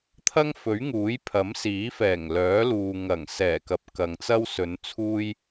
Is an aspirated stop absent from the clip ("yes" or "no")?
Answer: no